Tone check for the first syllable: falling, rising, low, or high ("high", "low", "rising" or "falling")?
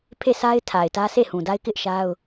falling